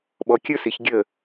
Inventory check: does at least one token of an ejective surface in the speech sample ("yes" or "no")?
no